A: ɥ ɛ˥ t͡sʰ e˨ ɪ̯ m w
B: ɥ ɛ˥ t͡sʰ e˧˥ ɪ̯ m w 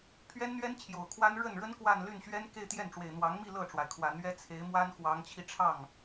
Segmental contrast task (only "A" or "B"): B